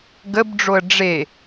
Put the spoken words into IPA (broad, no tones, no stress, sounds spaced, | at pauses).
ɡ ə b ɖ͡ʐ o ə̯ ɖ͡ʐ e